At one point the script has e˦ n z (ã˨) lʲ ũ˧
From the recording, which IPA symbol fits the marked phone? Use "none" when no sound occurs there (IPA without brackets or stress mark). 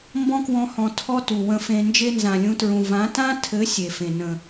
ã˨